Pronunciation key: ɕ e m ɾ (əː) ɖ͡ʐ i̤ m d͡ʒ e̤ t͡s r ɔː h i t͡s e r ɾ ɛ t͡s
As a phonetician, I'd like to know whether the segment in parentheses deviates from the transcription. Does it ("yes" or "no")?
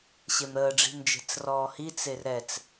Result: no